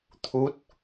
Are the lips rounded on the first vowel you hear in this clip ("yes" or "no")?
yes